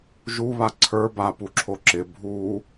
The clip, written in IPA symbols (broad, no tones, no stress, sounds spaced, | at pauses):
ʒ u β a ǀʰ ə˞ b a p u ǁʰ o ǁ ɪ bʱ u